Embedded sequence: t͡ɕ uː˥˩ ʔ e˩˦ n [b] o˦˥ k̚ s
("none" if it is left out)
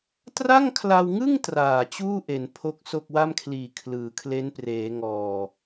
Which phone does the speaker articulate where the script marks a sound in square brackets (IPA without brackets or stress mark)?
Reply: pʰ